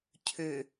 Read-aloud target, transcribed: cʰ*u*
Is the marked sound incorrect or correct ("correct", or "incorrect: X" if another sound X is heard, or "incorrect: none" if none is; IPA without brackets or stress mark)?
incorrect: ø